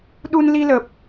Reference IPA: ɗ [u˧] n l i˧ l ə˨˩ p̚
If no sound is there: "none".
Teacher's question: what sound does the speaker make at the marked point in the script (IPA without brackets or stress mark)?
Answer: u˧